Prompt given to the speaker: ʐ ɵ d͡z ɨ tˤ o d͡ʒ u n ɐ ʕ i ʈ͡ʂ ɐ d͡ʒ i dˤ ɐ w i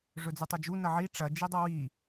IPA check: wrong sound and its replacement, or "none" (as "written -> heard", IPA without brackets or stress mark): none